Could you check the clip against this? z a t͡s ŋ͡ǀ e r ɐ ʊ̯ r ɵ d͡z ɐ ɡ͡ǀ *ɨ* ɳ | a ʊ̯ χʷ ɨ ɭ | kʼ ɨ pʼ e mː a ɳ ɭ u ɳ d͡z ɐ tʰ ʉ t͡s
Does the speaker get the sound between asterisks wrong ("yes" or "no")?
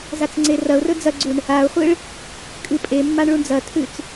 yes